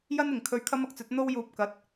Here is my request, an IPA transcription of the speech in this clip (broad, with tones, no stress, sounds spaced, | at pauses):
j ɐ˥ n ɪ˨ ŋ kʰ ɵ˧ ɥ kʰ ɐ˥ m ɐ˥ k̚ t͡s ɵ˨˥ t̚ n̪ o˥ w j uː˧ p̚ k ɐ˨˥ t̚